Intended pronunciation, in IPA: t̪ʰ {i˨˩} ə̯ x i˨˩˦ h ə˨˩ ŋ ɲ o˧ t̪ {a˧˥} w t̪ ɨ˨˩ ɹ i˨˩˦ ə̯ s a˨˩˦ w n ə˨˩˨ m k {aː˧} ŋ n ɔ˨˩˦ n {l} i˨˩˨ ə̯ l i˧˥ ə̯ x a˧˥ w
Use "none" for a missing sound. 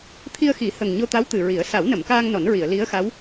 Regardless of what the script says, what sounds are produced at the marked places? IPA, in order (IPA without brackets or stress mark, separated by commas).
i˧, a˧˥, aː˧, ɹ